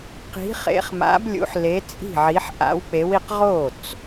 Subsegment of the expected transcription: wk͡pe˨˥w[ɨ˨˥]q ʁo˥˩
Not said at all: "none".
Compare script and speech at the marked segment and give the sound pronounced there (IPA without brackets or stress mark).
i˨˥